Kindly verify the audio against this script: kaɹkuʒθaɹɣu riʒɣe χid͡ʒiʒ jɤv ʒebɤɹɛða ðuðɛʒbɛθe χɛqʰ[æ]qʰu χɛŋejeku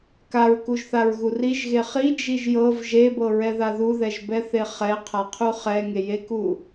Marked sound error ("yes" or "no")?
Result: yes